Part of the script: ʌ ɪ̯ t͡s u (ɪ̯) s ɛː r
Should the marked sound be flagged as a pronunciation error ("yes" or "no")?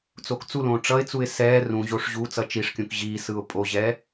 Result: no